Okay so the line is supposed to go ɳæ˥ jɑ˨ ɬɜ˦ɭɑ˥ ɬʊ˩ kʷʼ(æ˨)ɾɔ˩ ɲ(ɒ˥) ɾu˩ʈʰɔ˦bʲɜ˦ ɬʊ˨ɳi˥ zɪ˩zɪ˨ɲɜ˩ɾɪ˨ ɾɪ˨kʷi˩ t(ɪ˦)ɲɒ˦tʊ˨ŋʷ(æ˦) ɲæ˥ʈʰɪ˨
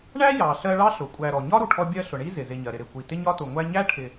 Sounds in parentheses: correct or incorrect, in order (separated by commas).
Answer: correct, correct, correct, correct